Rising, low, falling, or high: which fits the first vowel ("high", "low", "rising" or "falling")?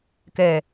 low